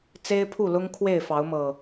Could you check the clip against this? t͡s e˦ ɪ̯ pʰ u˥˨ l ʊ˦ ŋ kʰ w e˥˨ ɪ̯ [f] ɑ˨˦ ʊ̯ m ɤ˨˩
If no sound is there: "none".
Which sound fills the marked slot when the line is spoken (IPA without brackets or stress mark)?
f